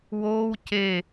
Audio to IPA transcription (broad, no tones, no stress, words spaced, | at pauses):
woːw ce